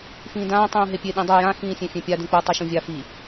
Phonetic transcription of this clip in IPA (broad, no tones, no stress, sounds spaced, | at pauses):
f ĩː d ãː tˤ ũː ɦ e pʲ e ɗ ĩ dˤ u j ã x ĩː sʲ ẽ fʲ ẽ pʲ a d ũ k͡p o tˤ i ʃ ũ vʲ a f i